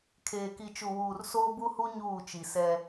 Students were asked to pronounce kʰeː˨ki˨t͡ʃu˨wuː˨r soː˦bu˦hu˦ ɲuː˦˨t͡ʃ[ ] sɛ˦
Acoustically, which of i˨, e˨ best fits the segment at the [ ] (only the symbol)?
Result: i˨